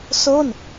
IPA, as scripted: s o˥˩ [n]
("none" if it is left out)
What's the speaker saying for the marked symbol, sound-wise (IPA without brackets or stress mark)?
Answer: n